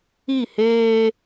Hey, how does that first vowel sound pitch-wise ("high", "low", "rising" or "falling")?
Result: falling